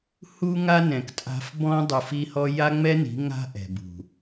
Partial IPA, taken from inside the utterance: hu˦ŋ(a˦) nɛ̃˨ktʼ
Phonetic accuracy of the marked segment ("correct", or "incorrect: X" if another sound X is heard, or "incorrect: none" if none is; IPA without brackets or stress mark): correct